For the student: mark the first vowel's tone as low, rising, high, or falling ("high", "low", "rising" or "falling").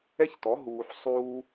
high